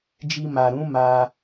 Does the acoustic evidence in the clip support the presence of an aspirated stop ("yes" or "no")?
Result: no